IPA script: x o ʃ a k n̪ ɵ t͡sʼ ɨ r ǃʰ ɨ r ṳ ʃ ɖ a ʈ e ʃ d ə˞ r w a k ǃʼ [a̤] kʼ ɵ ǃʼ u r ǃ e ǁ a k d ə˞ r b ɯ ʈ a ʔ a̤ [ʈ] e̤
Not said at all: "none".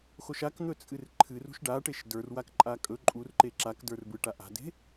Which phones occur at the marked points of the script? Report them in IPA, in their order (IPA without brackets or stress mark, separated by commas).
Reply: a, d